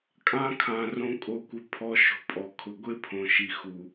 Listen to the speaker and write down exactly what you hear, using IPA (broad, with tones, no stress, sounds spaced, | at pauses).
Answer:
kʼ ã˦ kʰ ã˨ r õ˧ kʼ o˧ kʷ ɪ˧ pʰ ɔ˧ ʃ o̤˧ pʼ ɔ˨ kʰ ʊ˨ ɡʷ e˦ pʰ õ˨ ʃ i˨ x u˨